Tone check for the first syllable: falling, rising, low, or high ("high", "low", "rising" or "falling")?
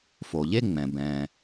low